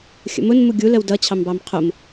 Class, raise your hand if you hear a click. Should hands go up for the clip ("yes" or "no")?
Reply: no